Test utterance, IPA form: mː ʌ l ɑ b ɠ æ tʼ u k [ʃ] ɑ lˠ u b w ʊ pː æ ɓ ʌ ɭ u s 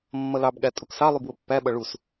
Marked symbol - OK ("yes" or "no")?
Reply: no